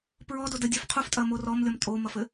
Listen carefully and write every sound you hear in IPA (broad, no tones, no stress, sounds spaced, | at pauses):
p ɹ ɔ d o d ə dʲ ɛ f qʰ u f tʼ ɐ m o r ɔ m lʲ ɔ m tʼ o m ɐ f ɘ